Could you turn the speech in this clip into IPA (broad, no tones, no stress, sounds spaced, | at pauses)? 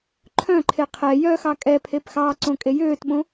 ǃʰ œ̃ ǃʰ e qʰ ɛ j œ x ɑ kʼ ɛ pʰ e p x ɑː ǀ õ kʼ e j øː t ɓ õ